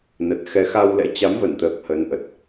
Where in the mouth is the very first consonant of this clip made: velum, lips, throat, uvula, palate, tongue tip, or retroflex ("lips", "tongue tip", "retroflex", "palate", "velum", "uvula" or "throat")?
tongue tip